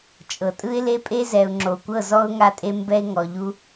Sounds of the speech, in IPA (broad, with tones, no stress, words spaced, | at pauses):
t͡ʃʼɤ˨tʼɯ˦ɪ̯le˦pʼe˦ zɛ˨ʊ̯ŋ͡ǁo˨kʷɤ˦˨ zɔ˦ʊ̯ŋa˦˨tʼe˦ mbɛ˦ɪ̯ŋɔ˨ʎu˦